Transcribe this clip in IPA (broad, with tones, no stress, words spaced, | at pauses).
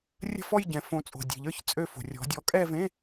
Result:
rʲə̤˥˧fɔ˥˧j ɟɛ̃˨ fõ˨˥t͡sʼo̤˨dʲe̤˨ʎə˞˥˧ç t͡sʼø˥˧fo̤˨rʲɔ̤˨˥ dʲɔ˨˥kʼɛ˥˧vẽ˧˥˧